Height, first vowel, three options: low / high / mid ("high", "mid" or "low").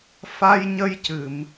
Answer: low